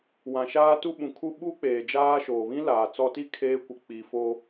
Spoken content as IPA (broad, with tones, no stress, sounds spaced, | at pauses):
w ã˨ ʃ aː˦ t u˦ ɓ ũ˨ kʰ u˦ ɓ u˦ k͡p eː˨ d͡ʒ aː˦ ʃ oː˨ β ĩ˦ l aː˨ t͡s ɔ˦ t i˦˨ kʰ eː˦ kʷ ɪ˨ k͡p i˨ f o˦